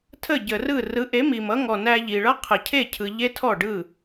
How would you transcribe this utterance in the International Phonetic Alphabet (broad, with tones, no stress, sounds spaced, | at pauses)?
tʰ ə˥˩ ɟ ə˩ r ɯ˥˩ r ɯ˩˥ ʔ e˩˥ m i˩ m ʌ˩˥ ŋ ɔ˩ n æ˧ ʎ i˩ ɭ ʌ˥ qʰ ɘ˩ cʰ e˥˩ cʰ ɯ˩ ʎ e˥ tʰ ɔ˥˩ ɖ ɯ˥˩